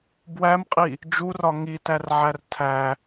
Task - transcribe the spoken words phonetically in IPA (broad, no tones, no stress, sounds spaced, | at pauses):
b w æ m qʼ i | d͡ʒ u r ɒ ŋ i t æ r ʕ æ r tʰ æ